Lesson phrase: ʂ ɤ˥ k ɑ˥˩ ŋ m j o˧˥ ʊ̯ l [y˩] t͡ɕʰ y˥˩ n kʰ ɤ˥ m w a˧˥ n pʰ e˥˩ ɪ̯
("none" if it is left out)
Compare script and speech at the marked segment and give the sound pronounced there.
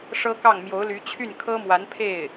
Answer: y˧˥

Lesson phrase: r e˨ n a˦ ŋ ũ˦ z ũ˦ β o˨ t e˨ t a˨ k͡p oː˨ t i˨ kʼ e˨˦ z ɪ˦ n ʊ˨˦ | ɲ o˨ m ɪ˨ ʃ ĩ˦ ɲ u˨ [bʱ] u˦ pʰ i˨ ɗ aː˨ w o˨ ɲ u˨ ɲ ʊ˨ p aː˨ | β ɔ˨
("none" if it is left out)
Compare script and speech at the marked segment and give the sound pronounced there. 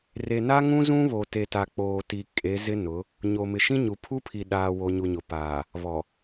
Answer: pʰ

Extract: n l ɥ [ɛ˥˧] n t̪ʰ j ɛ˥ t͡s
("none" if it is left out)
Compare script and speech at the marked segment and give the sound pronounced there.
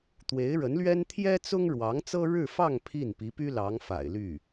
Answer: ɛ˥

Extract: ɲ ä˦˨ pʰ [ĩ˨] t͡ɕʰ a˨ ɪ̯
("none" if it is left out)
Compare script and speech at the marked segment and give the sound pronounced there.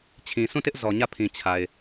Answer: ĩ˨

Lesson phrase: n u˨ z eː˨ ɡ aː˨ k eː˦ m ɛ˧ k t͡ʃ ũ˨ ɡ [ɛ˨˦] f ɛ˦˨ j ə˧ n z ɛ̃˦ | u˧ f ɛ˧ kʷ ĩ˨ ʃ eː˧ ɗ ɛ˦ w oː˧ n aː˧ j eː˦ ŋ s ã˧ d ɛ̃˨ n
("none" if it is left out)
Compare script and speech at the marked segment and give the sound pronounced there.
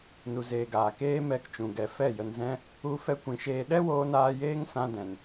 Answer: ɛ˨˦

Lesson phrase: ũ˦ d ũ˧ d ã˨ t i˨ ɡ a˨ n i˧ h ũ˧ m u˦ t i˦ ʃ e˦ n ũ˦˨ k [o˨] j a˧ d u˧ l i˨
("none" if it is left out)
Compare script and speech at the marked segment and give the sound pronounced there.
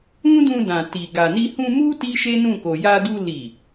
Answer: o˨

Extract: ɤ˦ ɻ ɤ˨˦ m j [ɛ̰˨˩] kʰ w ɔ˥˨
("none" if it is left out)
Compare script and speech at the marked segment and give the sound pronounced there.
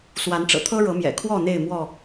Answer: ɛ̰˨˩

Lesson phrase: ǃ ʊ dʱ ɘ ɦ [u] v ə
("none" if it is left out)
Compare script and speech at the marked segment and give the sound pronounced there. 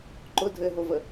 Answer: o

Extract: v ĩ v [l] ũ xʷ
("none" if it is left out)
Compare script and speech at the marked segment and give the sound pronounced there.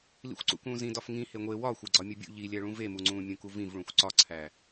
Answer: ɭ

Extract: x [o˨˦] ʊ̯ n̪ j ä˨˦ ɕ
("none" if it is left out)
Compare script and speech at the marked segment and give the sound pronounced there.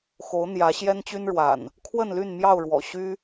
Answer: o˨˦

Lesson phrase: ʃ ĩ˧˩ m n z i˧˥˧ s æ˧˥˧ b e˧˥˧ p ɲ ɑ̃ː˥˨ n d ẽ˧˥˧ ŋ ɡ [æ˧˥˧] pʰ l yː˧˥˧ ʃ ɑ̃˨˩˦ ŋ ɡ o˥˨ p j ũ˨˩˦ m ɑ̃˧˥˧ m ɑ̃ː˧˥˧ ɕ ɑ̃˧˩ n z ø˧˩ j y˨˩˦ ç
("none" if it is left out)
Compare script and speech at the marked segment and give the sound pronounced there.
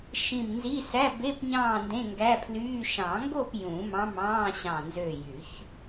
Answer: æ˧˥˧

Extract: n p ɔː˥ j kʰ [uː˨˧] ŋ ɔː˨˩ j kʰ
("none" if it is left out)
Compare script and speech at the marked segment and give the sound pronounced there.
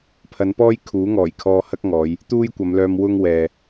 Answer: uː˨˥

